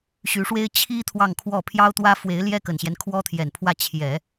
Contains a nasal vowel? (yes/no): no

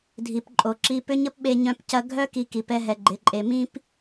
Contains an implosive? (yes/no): yes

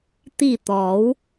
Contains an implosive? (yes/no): no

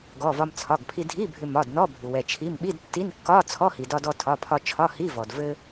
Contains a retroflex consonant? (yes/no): no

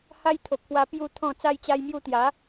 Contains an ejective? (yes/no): no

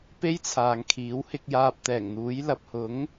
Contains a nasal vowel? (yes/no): no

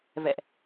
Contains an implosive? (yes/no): no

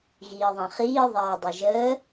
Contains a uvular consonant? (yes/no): yes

